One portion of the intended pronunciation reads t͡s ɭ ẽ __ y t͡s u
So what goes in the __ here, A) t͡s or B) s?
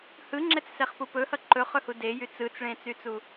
A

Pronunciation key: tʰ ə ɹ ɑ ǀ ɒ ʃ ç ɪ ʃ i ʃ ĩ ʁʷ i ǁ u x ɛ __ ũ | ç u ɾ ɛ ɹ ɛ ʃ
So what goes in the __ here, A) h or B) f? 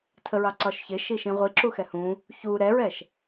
A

